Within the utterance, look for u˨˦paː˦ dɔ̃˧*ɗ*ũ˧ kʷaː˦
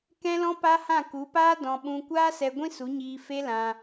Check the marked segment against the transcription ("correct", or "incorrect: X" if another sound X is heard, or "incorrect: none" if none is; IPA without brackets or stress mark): incorrect: ɓ